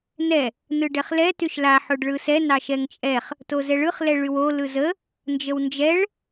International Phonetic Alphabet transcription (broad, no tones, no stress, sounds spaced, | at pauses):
n ɛ | n ɯ ɖ ɛ χ l ɛ t y ʃ l a ħ o ɖ ɭ ɯ s ɛ n ɑ ʃ ɛ ŋ t͡ʃʼ ɛ χ | t o z ɛ ɭ ɯ χ l ɛ ɭ y w o l ɯ z ə | n d͡ʒ ə w n d͡ʒ ɛ ɭ